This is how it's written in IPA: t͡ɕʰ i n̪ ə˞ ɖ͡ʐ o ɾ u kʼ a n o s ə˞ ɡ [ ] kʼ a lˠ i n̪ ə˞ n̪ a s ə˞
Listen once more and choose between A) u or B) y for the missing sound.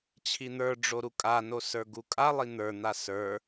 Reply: A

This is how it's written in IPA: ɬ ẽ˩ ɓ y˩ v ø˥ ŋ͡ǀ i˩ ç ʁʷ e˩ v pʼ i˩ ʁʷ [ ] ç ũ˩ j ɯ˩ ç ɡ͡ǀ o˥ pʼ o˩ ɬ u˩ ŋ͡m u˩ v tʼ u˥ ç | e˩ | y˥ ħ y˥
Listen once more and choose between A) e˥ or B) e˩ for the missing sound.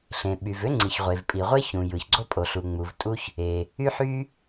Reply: A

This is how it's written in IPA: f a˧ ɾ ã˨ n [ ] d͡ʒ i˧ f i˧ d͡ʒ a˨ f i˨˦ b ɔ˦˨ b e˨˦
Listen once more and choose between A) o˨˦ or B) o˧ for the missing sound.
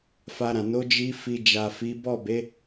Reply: A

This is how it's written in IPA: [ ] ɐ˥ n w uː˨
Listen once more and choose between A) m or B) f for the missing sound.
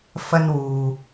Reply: B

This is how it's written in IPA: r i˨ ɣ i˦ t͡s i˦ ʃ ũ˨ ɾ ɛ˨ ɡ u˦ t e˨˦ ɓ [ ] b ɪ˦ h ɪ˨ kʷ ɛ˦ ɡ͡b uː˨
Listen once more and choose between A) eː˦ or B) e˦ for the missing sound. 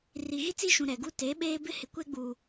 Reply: A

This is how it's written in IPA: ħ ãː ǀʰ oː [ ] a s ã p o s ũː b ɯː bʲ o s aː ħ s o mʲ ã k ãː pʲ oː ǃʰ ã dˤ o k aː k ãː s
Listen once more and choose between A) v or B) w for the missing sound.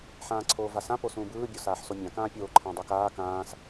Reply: A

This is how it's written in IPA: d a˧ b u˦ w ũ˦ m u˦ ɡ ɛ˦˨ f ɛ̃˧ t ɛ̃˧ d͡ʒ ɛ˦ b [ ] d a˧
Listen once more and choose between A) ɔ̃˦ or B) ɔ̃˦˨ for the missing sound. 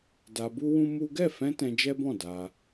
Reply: B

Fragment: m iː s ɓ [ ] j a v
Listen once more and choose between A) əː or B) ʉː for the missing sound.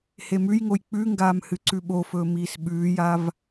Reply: B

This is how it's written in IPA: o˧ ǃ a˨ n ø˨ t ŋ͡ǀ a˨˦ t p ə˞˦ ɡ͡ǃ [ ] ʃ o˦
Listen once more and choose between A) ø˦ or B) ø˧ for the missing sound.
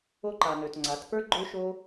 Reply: A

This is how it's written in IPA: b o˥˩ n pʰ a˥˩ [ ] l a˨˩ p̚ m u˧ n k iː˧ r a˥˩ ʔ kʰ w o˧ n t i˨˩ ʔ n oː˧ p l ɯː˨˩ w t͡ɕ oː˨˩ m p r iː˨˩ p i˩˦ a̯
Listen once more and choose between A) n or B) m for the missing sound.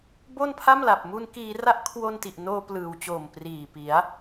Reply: B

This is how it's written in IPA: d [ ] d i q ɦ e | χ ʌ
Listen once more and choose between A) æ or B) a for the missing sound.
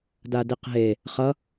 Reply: B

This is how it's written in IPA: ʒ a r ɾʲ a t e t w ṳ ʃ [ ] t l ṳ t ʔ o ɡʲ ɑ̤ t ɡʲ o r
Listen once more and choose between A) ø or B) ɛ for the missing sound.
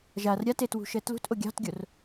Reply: B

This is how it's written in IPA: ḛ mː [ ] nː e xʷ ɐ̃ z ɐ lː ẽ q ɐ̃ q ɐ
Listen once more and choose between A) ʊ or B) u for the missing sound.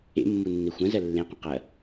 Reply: B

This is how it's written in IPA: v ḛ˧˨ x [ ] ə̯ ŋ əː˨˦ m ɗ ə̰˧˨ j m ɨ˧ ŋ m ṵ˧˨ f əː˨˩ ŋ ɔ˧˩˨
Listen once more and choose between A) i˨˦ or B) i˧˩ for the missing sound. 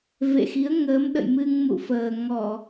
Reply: A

